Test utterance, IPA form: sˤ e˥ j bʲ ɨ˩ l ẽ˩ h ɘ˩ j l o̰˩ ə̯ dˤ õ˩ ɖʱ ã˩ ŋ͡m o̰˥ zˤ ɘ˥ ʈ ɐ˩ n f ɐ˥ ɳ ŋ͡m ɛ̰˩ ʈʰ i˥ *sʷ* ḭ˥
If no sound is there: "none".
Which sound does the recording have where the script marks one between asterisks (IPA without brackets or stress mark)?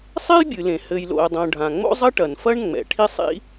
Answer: sˤ